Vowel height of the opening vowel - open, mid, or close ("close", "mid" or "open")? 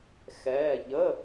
mid